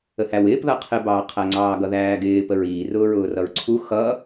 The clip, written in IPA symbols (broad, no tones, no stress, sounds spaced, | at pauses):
ə h æ w ɪː p ð ʌ qʰ ɪ b ɑː qʰ æ ŋ͡ǀ ɑː ɡ ʌ ð æː ɡ ɪː p ə ɹ iː r ʊː ɹ ʊː r ʌ ɹ ǀʰ u x ʌ